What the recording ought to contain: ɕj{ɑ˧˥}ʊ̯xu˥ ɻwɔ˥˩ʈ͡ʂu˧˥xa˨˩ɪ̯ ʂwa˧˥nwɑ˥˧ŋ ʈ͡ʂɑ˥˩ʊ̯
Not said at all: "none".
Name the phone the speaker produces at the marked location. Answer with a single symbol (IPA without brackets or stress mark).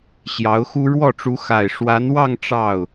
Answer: ɑ˧˥